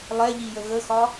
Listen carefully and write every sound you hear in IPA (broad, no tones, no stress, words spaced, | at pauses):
lˠɛʎijə ɣəxɒ